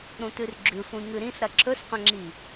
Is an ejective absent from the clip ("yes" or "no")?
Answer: yes